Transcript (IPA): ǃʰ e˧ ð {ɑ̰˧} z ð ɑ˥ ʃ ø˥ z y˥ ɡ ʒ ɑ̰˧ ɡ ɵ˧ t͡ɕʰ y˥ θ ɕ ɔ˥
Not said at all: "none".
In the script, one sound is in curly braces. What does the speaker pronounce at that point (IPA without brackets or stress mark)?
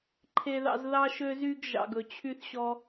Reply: ɑ̰˧